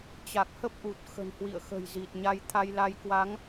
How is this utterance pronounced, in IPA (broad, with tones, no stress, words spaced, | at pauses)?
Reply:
t͡ɕa˨˩k̚hə˦˥p̚ʔu˨˩t̚ xə̤˨˩nhwḭ˧˨ə̯ xə̤˨˩jzi˨˩t̚ɲa˧j t̪ʰa˧jla˧j kwa˨˦ŋ